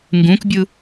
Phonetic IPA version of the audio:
ŋ ɡ ũ k bʲ ɯ

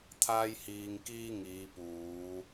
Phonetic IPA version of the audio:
t̪ʰ aː˥ j h iː˧ ŋ k iː˥ ŋ iː˨˧ p uː˨˧

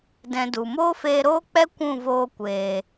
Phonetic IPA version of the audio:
d ɛ̃˧ d u˨ m oː˦ f eː˧ ɾ oː˦ k͡p ɛ˦ kʷ ũ˦˨ v oː˧ kʷ eː˨

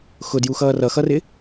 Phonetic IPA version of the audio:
x ʊ d j u x ʌː r ʌ x ʌ r ɪ

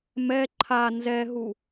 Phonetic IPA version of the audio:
m ɛ ǃʰ a n z ɛ ɦ u

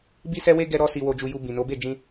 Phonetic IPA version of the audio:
b i˦ s ɛ˦ w e˦ ɡ ɛ˦ ɾ ɔ˦ s i˧ w o˧ d͡ʒ u˧ j u˧ b ĩ˨ n o˨˦ b e˦˨ d͡ʒ ĩ˧

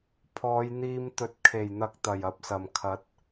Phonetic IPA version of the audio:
pʰ ɔː˨˧ j n̪ iː˧ m t̪ ɵ˨ t̚ kʰ e˨˩ j n̪ ɐ˨ k̚ t̪ ɐ˨˩ j ɐ˨ p̚ s ɐ˨˩ m kʰ ɐ˨˥ t̚

